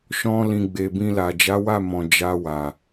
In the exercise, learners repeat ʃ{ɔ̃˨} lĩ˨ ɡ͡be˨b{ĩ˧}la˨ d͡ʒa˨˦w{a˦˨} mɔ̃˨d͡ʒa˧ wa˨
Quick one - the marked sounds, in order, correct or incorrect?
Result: incorrect: ɔ̃˧, correct, correct

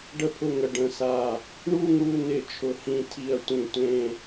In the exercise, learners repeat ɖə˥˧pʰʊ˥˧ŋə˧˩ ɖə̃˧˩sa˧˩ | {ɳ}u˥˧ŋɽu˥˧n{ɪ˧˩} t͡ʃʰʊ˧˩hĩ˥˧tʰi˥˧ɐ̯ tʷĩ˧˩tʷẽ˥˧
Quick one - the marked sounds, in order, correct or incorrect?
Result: correct, correct

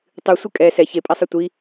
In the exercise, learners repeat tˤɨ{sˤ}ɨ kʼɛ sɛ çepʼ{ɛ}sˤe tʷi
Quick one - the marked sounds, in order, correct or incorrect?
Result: incorrect: sʷ, correct

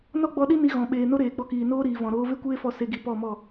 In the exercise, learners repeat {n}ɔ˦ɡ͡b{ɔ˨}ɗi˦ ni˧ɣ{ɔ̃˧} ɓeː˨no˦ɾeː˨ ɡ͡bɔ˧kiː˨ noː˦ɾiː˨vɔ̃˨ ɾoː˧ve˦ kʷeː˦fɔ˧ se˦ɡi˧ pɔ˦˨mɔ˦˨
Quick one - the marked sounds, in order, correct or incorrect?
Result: correct, incorrect: ɔ˧, incorrect: ɔ̃˨

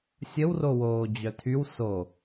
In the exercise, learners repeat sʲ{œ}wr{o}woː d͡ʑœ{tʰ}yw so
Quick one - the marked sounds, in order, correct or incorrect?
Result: incorrect: ə, correct, correct

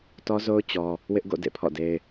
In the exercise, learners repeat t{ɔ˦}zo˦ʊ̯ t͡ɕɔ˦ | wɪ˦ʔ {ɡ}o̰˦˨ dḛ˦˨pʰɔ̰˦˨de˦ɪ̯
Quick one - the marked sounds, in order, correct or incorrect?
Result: correct, correct

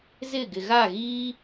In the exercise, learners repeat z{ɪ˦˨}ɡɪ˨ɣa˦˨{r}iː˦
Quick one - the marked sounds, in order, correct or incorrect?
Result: correct, incorrect: ɣ

